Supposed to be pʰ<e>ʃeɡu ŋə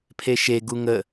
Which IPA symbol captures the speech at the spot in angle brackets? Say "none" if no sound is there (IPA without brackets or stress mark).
e